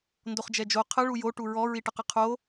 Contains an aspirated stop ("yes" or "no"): yes